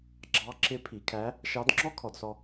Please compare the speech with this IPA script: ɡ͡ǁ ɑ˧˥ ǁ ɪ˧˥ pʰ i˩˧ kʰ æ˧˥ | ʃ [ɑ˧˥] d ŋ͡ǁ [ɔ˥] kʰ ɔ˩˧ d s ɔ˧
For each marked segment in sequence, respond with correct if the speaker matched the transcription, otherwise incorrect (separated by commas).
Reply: correct, correct